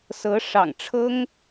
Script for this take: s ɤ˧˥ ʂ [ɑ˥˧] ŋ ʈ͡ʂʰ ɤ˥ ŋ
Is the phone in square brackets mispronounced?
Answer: yes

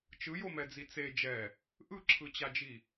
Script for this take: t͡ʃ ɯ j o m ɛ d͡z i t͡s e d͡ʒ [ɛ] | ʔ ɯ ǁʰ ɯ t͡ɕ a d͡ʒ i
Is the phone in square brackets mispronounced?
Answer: no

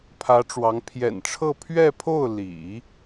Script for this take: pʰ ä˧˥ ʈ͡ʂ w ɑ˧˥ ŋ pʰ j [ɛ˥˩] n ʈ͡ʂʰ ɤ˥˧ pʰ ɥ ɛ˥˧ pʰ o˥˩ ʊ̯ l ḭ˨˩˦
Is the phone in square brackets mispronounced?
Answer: yes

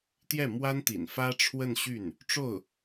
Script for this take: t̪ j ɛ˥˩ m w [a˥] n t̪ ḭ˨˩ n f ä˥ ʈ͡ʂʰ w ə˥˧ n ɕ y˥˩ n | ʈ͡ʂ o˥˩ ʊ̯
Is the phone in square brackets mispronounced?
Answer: no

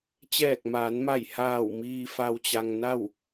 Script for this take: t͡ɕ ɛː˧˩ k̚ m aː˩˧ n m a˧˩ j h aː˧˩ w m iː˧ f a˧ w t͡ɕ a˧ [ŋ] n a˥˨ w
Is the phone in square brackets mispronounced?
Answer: no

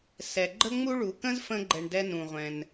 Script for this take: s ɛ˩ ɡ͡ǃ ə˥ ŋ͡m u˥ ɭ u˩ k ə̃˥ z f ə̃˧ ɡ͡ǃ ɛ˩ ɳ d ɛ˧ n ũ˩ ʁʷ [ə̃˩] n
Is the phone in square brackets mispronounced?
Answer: yes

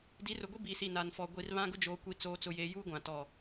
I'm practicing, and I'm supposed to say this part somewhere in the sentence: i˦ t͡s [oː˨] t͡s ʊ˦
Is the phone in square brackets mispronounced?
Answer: yes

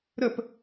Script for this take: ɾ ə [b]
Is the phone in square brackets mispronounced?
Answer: yes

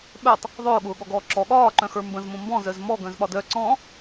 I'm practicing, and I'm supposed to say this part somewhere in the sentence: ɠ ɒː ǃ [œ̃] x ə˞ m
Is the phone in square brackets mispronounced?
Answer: no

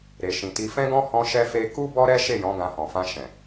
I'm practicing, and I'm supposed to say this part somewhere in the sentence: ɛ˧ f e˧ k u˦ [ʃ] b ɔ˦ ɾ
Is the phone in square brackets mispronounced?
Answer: yes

